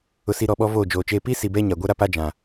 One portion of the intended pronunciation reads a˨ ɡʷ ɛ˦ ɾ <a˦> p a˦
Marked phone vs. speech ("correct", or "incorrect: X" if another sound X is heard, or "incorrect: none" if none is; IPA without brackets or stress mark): correct